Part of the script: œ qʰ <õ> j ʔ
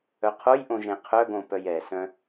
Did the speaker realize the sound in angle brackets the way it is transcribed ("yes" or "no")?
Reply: no